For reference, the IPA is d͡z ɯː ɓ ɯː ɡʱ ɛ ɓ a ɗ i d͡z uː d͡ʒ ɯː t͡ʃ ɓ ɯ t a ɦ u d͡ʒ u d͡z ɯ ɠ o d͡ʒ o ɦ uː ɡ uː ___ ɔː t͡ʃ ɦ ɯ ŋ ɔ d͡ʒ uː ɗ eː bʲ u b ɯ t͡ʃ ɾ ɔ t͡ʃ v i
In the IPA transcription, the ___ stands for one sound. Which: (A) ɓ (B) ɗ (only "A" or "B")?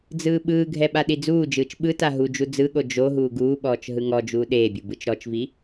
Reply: A